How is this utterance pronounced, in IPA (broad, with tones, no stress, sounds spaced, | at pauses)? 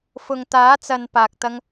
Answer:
f ʊ˨ ŋ t̪ aː˨˥ t͡s ɐ˨ n p aː˨ k̚ t̪ ɐ˧ ŋ